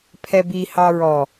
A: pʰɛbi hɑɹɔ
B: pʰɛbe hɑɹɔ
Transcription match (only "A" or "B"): A